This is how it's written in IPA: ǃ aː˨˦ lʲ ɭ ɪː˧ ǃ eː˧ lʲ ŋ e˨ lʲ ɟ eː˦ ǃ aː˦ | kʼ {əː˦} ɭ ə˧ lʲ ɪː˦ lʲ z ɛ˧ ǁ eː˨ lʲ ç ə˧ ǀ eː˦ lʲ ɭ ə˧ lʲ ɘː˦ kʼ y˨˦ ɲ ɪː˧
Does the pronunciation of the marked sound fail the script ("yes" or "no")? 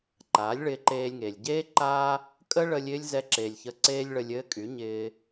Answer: yes